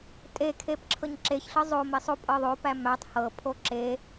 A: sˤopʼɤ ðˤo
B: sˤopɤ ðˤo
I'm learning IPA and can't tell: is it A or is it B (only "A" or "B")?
A